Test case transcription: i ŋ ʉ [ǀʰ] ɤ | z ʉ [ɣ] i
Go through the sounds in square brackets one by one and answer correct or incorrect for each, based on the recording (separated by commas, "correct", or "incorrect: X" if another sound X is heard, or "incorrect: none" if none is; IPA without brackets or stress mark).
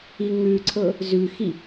correct, incorrect: x